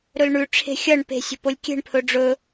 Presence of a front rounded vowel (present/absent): absent